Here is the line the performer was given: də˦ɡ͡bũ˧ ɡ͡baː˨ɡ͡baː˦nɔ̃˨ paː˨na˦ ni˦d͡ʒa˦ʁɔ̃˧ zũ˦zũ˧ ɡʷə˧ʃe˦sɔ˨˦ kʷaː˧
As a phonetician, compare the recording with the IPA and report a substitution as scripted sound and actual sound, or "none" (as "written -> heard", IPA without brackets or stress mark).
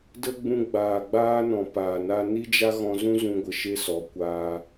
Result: ʁ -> ɣ